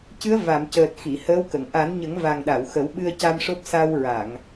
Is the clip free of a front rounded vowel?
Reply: yes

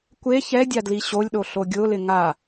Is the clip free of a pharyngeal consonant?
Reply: yes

